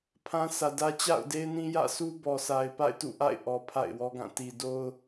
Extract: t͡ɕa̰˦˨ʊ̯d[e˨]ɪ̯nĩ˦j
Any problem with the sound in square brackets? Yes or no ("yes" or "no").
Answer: yes